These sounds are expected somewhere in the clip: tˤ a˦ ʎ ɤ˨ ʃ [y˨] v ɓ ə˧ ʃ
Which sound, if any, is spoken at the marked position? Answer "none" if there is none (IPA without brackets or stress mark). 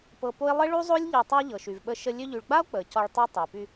y˨